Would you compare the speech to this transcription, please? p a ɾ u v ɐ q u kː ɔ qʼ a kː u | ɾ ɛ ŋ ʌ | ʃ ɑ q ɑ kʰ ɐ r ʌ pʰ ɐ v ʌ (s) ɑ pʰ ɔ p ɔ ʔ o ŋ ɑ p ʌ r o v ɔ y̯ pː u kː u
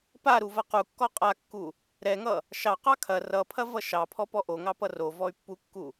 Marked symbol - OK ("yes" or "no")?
no